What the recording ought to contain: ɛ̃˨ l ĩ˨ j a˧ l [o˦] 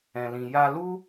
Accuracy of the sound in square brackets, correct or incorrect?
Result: incorrect